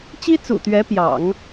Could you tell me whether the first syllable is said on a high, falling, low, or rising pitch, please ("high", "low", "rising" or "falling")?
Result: high